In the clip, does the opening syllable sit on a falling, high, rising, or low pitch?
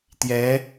rising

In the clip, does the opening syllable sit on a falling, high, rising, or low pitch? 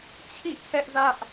falling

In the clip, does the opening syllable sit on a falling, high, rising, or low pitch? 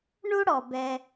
high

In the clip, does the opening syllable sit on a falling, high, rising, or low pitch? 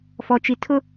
low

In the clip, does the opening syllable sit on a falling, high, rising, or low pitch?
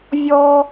high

